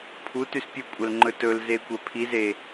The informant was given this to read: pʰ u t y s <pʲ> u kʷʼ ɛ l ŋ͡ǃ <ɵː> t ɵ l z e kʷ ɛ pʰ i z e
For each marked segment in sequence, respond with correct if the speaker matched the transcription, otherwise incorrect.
correct, incorrect: ɵ

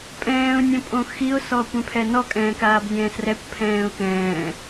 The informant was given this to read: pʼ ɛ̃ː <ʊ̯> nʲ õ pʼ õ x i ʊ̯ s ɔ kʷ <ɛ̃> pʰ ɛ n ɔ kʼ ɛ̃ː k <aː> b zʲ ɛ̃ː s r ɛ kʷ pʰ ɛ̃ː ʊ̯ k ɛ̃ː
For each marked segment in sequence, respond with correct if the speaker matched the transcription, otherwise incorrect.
correct, correct, correct

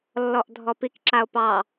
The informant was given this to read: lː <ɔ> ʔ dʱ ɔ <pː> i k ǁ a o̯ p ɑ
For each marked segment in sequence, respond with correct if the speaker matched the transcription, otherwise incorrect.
correct, incorrect: p

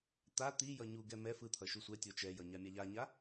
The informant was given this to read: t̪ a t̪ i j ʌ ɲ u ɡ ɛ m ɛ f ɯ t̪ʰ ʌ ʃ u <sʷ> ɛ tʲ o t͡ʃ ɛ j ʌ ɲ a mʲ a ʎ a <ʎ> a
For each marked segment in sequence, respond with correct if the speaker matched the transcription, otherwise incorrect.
correct, incorrect: ɲ

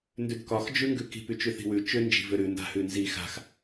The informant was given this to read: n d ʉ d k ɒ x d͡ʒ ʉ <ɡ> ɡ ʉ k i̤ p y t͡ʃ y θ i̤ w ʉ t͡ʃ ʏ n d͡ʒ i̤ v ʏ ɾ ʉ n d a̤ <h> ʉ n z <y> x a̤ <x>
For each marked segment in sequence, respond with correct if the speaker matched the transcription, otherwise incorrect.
incorrect: ŋ, correct, incorrect: i, correct

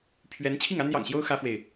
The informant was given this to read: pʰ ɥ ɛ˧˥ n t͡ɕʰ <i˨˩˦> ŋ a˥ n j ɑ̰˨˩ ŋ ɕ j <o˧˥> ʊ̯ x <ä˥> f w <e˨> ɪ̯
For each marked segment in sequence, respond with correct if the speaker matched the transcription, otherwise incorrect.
incorrect: i˥˩, incorrect: o˥, correct, correct

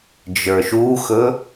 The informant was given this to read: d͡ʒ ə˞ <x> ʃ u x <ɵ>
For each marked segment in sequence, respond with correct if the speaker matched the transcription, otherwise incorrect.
incorrect: none, correct

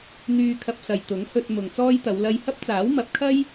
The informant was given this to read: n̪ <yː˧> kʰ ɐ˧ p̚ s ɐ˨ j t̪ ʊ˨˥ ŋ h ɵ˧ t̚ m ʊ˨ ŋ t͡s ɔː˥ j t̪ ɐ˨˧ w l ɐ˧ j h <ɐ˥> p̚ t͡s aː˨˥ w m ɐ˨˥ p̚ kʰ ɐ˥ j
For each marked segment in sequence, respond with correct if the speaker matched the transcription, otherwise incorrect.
correct, correct

